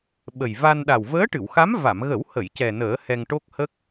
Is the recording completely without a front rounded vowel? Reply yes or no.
yes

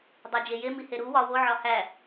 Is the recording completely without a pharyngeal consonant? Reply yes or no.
no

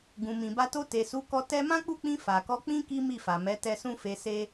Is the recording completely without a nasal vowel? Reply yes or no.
no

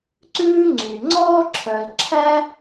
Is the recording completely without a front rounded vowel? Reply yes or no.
no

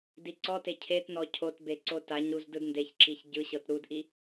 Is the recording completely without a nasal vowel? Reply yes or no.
yes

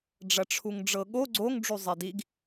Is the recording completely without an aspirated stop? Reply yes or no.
no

